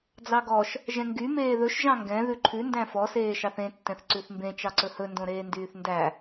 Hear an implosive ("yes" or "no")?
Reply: no